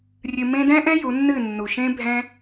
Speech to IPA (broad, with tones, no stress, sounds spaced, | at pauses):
rʲ ɨ˧ m ẽ˦ d ɛ̃˦ ʔ ɛ̃˦ j u˨˦ nː ɨ˦˨ nː u˨ ʃ ẽ˦ bʱ ɛ̃˦